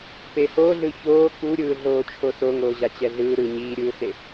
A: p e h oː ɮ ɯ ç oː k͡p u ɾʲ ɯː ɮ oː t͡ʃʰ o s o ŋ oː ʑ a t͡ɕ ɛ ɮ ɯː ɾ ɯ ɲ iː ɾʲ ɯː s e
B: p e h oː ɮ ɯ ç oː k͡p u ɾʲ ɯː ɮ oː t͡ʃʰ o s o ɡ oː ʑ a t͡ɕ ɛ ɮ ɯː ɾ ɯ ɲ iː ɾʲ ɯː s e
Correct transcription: A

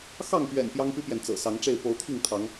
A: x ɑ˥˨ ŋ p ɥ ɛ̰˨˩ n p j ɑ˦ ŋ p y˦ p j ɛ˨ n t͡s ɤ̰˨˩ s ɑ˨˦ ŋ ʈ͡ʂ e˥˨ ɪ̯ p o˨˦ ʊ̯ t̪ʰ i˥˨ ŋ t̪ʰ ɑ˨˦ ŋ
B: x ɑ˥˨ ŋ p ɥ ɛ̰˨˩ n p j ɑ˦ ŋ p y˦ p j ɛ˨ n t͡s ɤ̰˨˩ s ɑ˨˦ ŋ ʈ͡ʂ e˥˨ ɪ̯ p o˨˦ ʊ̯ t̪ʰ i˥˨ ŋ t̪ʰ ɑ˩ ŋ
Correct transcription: A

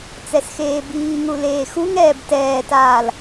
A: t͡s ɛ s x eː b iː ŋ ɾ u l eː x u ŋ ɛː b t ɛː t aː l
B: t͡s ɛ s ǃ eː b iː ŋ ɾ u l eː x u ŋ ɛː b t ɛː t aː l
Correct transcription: A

